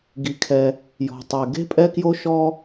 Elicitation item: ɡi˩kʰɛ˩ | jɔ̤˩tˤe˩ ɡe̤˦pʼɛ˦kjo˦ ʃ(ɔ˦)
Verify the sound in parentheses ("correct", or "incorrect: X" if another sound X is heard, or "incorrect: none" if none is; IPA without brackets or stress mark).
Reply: correct